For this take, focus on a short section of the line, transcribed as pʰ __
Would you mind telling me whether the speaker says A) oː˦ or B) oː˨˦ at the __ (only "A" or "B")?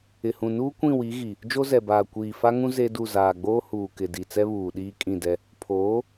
B